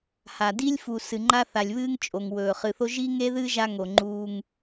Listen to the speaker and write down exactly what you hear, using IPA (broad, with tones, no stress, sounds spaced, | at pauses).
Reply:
h a˨ d i˦ lʲ f u˨ s ɨ˨ ŋ͡ǃ a˦ θ a˨ lʲ β ɨː˦ ŋ t͡ʃʼ o˨ ŋ w ɵː˨ χ ɨ˨ θ o˦ ʒ i˦ ŋ e˦ ð ɨ˦ ʒ a˦ ŋ o˨ ŋ͡ǃ uː˦ ŋ